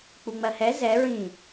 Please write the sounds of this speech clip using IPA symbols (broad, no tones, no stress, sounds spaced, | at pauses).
k͡p u ŋ͡m ɜ h ɛ z ɛ ɹ ĩ